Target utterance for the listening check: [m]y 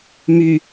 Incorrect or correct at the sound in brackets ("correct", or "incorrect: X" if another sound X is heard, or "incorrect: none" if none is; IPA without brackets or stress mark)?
correct